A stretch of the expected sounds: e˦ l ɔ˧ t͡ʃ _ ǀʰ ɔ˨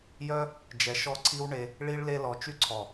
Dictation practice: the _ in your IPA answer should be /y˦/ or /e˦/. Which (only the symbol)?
y˦